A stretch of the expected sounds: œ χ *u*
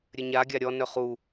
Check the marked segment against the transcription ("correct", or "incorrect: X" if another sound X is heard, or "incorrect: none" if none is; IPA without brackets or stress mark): correct